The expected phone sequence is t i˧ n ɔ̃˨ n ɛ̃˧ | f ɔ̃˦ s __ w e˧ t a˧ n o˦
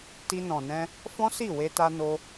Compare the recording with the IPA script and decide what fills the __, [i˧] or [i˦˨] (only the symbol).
i˦˨